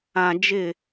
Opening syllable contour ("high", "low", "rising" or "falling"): low